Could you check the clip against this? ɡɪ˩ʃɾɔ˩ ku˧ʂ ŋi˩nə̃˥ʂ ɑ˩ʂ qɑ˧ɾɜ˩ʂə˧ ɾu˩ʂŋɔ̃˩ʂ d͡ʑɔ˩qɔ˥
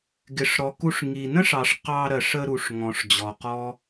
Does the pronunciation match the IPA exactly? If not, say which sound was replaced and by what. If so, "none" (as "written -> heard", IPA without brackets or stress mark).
ʃ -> ʂ